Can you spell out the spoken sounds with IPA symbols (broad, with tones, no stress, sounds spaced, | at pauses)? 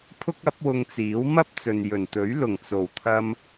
pʰ ʊ˥ k̚ ɐ˨˥ p̚ w ʊ˧ ŋ t͡s iː˨˥ w m ɐ˥ p̚ t͡s ɵ˨ n j ɵ˨˩ n t̪ ɵ˨˥ ɥ l ʊ˨˩ ŋ t͡s o˨˩ w t̪ʰ ɐ˧ m